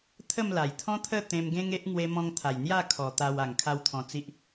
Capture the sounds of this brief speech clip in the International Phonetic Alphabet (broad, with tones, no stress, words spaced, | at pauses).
t̪ʰə˥˧mla˨˩jt̪ʰɔ̃˦t̪ʰə˥˧ t̪ẽ˧mɡẽ˦ŋe˦ʔ ŋwe˧mɔ̃˧ŋt̪ʰa˨˩j n̪ja˥˧kʰɔ˨˩ t̪a˧w a˨˩ŋkʰa˧w t̪ʰɔ̃˧t͡si˦ʔ